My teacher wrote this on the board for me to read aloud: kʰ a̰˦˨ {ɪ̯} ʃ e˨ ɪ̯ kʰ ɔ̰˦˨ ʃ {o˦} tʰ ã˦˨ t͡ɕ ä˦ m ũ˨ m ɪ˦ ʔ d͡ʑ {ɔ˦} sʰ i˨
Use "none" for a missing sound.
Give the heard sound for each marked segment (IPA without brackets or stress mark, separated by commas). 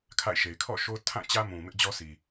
ɪ̯, o˦, ɔ˦